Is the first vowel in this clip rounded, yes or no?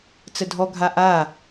no